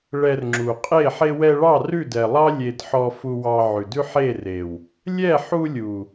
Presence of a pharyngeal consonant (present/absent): present